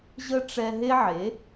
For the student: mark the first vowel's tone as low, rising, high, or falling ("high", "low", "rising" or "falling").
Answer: high